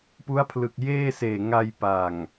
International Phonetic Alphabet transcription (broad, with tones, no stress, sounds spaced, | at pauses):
p u˦˥ a̯ pʰ l ɯ˨˩ k̚ j eː˥˩ s eː˨˩ ŋ a˧ j p a˨˩ ŋ